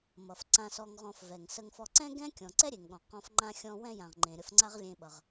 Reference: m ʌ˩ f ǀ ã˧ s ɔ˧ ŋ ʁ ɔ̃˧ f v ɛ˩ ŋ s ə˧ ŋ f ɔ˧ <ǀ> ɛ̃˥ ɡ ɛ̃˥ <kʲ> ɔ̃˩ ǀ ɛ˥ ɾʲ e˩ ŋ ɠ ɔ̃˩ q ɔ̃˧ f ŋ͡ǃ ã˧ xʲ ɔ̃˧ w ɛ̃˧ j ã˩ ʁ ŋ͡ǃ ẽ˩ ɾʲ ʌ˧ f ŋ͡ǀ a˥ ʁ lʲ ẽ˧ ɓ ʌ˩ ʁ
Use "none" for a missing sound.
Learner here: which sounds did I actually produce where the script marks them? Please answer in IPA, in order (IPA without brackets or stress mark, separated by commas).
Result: ǀ, kʲ